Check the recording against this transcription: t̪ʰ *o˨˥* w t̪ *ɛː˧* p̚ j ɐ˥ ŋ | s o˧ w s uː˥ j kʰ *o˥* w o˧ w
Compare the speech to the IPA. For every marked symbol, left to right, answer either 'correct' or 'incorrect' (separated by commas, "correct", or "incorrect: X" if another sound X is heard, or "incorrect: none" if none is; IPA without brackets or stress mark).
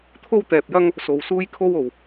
incorrect: o˥, correct, correct